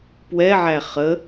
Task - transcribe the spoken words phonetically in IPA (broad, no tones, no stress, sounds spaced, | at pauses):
p w ɛ ʕ æ χ ə